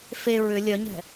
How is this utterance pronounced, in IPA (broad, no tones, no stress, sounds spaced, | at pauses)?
f e ɹ ʏ lʲ œ ɲ ɛ̤